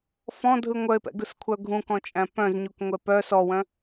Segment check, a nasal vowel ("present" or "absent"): present